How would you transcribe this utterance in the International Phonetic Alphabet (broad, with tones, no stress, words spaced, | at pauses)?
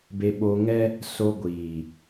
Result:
be˧ɓo˧ŋɛ˦ | so˧ɡʷiː˨